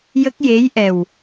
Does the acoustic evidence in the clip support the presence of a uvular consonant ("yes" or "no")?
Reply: no